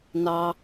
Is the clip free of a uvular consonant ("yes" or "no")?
yes